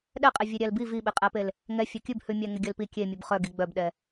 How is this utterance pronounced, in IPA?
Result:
ɗ ɛ qʼ ɛ vʲ e ɾʲ æ l b i v i ɓ e qʼ æ p e l | ŋ ɛ fʲ œ kʲ ʉ b h ʉ mʲ æ ŋ e ɡʲ œ l p i kʲ e mʲ ʉ b χ œ ɡ i ɡ͡b œ b ɗ ɛ

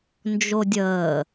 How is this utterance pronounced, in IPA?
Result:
n d͡ʒ o dʲ əː

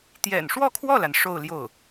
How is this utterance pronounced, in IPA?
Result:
t̪ j ɛ̰˨˩ n ʂ w ɔ˥˧ kʰ w ɔ˥˩ l a˩ n ʂ o˥˧ ʊ̯ l j o˥˩ ʊ̯

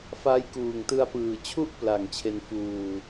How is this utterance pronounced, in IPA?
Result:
f a˦˥ j k uː˨˩ ŋ t ɯ˧ a̯ p ɯː˨˩ t͡ɕʰ u˥˩ ʔ p l a˨˩ ŋ t͡ɕʰ e˧ n f uː˧

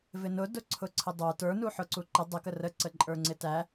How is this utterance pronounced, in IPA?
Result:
v ɪ n ʊ d ʊ ǀʰ ʊ ǀʰ ə dˤ ə˞ t ə˞ n u ħ ʊ ǀ u ǃ ə dˤ ə k ə r ə ǀ ə ǃʼ ə˞ ŋ͡ǀ ɪ t æ

